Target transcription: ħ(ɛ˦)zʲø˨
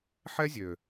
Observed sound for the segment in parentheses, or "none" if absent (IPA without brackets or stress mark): ɛ˦